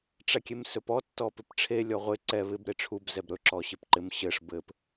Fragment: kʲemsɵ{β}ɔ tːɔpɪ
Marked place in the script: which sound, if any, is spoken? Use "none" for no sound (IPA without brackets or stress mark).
p